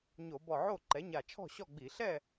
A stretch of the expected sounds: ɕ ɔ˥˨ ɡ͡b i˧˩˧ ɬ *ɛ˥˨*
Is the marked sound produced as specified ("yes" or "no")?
yes